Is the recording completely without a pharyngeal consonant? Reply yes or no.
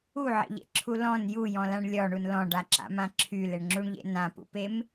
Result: no